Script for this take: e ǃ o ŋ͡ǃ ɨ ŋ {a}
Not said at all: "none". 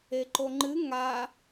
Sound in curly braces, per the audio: a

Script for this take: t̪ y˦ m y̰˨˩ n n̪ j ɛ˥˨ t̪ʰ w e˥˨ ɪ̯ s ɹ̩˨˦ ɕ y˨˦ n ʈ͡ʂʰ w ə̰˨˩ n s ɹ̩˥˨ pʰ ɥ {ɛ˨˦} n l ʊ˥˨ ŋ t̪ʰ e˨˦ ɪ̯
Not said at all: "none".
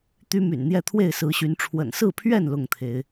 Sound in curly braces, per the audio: ɛ˥˨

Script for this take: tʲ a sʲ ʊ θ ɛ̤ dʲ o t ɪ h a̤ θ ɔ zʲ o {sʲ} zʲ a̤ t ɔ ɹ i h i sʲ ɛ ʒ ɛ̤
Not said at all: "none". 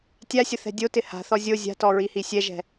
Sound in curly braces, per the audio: none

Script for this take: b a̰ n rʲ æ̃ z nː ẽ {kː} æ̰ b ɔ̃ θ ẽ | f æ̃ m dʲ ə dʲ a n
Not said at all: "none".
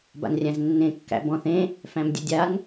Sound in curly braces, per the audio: kː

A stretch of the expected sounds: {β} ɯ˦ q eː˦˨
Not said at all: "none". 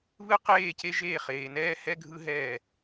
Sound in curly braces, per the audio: β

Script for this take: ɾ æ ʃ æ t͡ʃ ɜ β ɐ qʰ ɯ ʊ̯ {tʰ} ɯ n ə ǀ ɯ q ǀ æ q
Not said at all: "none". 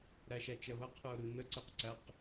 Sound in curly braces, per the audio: ɾ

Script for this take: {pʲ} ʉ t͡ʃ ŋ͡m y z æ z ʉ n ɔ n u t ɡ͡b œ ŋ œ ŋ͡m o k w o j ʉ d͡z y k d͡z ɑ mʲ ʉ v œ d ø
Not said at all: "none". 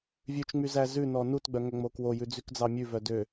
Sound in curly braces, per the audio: vʲ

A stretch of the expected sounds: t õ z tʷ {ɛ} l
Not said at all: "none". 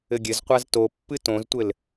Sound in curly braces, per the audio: ɘ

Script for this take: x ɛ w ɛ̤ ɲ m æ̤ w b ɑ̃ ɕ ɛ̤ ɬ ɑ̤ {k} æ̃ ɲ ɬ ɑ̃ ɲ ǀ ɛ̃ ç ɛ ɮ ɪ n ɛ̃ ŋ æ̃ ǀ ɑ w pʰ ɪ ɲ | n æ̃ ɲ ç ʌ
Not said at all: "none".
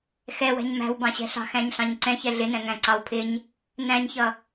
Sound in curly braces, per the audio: x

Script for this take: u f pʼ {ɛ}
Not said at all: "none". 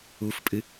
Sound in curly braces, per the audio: ɨ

